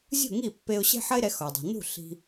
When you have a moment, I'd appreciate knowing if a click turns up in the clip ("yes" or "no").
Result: no